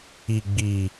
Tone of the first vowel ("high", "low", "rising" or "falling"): low